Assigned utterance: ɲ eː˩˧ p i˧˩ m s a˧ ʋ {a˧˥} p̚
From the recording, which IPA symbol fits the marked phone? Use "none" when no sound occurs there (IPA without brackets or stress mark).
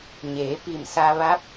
a˧˥